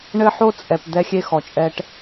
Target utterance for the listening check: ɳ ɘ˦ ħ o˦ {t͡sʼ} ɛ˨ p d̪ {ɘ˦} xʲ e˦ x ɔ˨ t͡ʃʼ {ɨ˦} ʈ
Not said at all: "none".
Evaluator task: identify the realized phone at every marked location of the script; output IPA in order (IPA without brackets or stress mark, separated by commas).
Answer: t͡sʼ, ɛ˦, ɛ˦